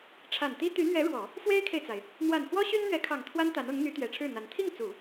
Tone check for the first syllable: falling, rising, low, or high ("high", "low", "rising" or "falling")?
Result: low